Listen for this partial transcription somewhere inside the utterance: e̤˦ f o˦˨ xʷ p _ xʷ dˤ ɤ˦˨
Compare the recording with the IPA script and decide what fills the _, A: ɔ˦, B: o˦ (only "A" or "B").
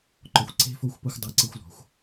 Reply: B